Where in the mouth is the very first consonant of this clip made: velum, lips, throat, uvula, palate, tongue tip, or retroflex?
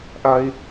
throat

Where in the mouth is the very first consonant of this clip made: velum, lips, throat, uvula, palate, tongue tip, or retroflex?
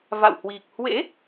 lips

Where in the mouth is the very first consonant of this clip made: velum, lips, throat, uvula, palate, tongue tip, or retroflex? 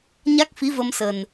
palate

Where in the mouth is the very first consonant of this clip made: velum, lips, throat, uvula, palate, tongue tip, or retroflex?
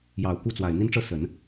palate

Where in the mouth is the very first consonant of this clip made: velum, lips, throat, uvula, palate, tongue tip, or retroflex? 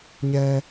palate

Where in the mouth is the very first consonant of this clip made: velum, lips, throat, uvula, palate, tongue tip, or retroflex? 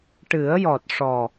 retroflex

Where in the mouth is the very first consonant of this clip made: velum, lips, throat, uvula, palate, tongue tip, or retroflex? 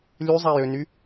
tongue tip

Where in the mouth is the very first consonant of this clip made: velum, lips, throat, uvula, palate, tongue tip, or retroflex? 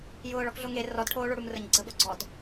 palate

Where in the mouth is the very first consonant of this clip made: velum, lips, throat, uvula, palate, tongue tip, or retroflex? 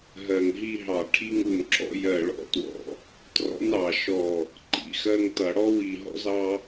throat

